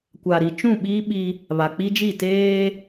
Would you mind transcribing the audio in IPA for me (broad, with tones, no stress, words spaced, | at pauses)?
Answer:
kʷa˨ɾi˨ t͡ʃũ˦˨ɓiː˦ɓi˦ | βa˨k͡pi˦d͡ʒi˦˨ teː˦